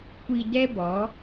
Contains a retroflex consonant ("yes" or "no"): no